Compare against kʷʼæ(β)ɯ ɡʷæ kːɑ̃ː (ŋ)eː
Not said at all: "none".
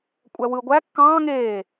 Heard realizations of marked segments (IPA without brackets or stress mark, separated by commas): w, ŋ